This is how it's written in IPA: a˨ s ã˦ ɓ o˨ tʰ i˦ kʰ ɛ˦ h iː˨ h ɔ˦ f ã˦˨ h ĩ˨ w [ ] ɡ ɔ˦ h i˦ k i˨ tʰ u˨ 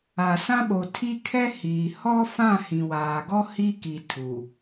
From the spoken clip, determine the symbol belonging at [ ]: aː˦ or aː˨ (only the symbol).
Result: aː˨